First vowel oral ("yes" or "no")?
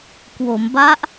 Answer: yes